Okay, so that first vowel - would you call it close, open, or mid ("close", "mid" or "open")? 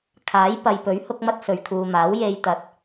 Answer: open